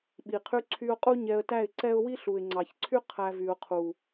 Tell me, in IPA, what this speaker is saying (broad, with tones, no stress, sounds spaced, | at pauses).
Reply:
ɓ i˨ qʰ y˧ ǀʰ y˧ ʊ̯ qʼ u˦ ɲ ɛ˧ ə̯ t æ˦˨ ɪ̯ ǀ ɛ˦ ʊ̯ w i˦ ɬ u˨ ɪ̯ ŋ͡ǀ ɑ˨ ç ǀʰ y˦ qʰ æ˧ v y˨ ʊ̯ qʰ u˨